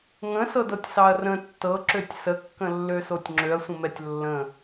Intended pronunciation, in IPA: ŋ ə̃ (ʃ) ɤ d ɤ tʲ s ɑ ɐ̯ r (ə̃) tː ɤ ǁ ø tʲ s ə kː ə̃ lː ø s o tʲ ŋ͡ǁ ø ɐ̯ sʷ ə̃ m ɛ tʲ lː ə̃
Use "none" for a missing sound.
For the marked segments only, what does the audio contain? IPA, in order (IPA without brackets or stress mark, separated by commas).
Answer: s, ə̃